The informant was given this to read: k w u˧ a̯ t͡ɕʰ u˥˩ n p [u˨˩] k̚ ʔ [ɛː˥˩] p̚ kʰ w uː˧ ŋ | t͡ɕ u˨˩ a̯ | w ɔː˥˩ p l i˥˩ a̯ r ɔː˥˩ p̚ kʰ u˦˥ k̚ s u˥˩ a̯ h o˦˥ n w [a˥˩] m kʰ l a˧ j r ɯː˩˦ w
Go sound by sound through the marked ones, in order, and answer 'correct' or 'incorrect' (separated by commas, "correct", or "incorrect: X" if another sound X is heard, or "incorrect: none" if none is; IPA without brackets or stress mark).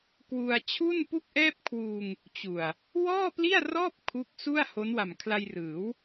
incorrect: u˥˩, correct, incorrect: a˨˩